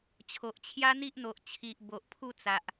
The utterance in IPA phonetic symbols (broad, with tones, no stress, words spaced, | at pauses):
t͡ɕʰo˨ʔt͡ɕʰja˦n̪i˦ʔn̪o˨ʔ t͡ɕʰi˨ʔbo˨ʔpʰu˥˧ t͡sa˨ʔ